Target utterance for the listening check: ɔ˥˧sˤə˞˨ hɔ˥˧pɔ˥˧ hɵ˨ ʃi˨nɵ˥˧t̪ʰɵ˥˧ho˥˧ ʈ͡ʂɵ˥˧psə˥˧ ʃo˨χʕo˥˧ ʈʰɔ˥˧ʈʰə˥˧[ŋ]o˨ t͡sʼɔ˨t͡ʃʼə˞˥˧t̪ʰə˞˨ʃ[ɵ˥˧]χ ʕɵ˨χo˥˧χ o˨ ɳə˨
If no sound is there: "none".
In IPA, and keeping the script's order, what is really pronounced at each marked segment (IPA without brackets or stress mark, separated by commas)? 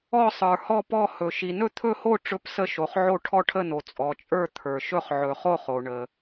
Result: n, ɵ˥˧